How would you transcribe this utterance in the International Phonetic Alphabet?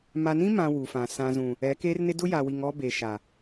m a˨ n ĩ˦ m ã˨ w u˨ f ã˨ s ã˨ z ũ˨ | ɛ˨˦ k eː˦ r n ɪ˦ d ʊ˦ j a˨ w i˨ ŋ ɔ˦ b e˨ ʃ a˨

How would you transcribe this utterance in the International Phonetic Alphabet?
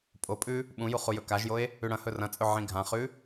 pʼ o pʼ ʉ | ɓ ũ j u χ u j ɵ k a ʒ j o e̯ | ʉ ɽ ɐ̃ h ɵ r ɐ̃ t͡sʼ ɵ ʕ ĩ ɡʱ ã χ ʉ

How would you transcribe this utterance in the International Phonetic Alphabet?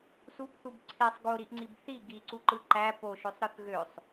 s u b θ u b ǀʰ e sˤ ɡ o ɾ i ʔ ŋ͡ǀ i b θ i ɡ i ǀ u ǃ ɯ ǃ æ p o ʃ ø sˤ ɾ ɯ θ ɣ ø sˤ

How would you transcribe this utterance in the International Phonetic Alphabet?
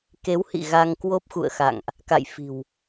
k e˨˦ w h ḭ˧˨ ɣ a˧ ŋ k w o˦˥ p̚ x ṵ˧˨ ə̯ x a̰˧˨ ŋ ʔ | k a̰˧˨ j f i̤˨˩ w

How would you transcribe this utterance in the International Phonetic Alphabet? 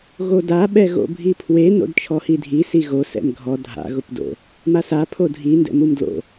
ɣ o d a ɓ ɛ ɣ o̰ bʱ i pʰ w e n o̰ d t͡ʃʰ ɔ h i dʱ i s i ɣ o s ɛ̰ m ɡʱ ɔ dʱ a̰ ɣ ʊ p d o̰ | m a s a pʰ o dʱ i n d ɛ̰ m u m d l o̰

